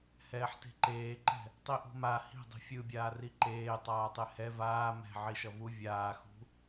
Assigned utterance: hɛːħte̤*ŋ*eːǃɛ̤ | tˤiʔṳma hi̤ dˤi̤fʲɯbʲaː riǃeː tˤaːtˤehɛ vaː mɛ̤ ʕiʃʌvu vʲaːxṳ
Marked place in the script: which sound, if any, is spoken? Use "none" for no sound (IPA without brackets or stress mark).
ǃ